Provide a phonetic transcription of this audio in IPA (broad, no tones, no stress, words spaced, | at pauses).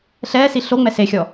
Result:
ɬɛːsi ɬoŋ͡mɛ sexʲɔ